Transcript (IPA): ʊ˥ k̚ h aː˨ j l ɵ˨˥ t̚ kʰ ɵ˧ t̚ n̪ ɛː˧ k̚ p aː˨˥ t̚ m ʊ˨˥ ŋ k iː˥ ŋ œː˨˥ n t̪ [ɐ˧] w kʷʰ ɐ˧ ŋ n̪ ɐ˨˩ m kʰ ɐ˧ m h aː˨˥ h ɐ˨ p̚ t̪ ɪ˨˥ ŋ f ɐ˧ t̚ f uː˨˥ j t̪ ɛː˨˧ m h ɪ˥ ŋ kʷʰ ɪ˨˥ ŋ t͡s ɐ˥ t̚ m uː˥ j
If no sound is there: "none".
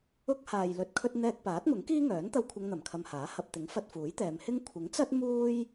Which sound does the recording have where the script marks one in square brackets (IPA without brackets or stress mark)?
ɐ˧